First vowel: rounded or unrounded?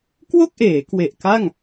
rounded